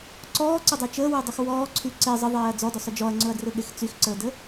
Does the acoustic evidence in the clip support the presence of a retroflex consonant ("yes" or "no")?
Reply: no